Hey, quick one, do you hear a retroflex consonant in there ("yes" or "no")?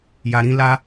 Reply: no